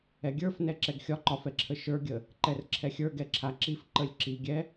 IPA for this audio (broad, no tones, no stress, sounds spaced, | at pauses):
ɛ ɡʲ ə˞ f n ɛ ǁ ɛ ɡ xʲ ɒ ǃ ɒ f ɛ ǁʰ ə ʃ ə˞ ɡʲ ə | ǃ ɛ r ǁʰ ɛ xʲ ə˞ ɡ ɛ ǁʰ a ǁ i f ǃ ə lʲ ǁ i ɡʲ ɛ